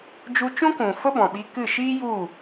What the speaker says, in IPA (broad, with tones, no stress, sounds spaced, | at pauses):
d͡ʒ u˧ t͡ʃ ũ˦ k ũ˨ f ə˦ b ɔ̃˨ ɓ i˧ k ɨ˦˨ ʃ iː˦ j u˦˨